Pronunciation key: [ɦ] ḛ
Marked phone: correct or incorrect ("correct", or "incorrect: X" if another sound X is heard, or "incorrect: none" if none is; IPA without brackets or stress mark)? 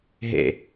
correct